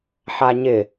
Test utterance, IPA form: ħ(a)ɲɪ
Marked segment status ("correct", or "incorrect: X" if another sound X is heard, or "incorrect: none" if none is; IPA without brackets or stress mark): correct